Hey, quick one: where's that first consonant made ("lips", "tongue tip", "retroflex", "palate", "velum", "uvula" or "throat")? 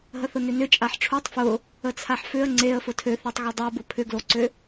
throat